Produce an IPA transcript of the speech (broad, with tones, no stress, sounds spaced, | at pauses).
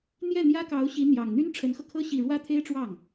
n̪ j ɛ˥˩ n̪ j ä˥ k ɑ˧˥ ʊ̯ ɕ i˧˥ n̪ j ɑ˨˩ ŋ n̪ y˥ n ʈ͡ʂʰ ə˧˥ n x ɤ˧ kʰ ɤ˥ ɕ i˥˩ ɻ w ä˥ t̪ʰ e˥ ɪ̯ ʈ͡ʂ w ɑ˥˩ ŋ